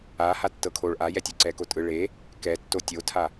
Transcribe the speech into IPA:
a h a tː ɤ kʰ o ɭ ʔ a j ɛ tʲ o ǀ ɛ k o tʼ ɯ ɭ e | k ɛ tː o tʲ o tʰ a

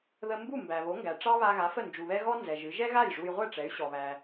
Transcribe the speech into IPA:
ð ə˧ m b u˥˩ m b æ˩ β o˩˥ ŋ ɡ æ˩ ʈ͡ʂ ɑ˥ β a˧ ɣ a˩˥ f ə˥˩ n d͡ʒ u˩ β ɛ˥ ɣ ɔ˥ n z ɛ˩ ʒ ɨ˩˥ ʒ ɛ˥ ɣ a˥˩ j ʐ u˧ j ʁʷ ɛ˥˩ ʈ͡ʂ ɛ˩˥ y̯ ɕ ɔ˩ β æ˩

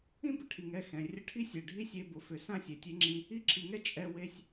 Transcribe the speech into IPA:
ĩ˦ b ə˨ ʈʰ i˨ ŋ ɛ˦˨ x ɛ̃˨ rʲ ə˧ ʈʰ i˦ sʲ ɛ˨ ɖʱ i˦ sʲ e˧ b ʊ˨ f ʏ˨ s ã˦ sʲ e˨ tʲ e˦ ŋ͡ǁ ĩ˧ | i˧ ǁʰ i˨ ŋ ɛ˧ t͡ʃʼ ɛ˧ w e˧ sʲ

